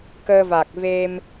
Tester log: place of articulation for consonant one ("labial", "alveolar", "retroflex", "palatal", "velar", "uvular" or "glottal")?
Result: velar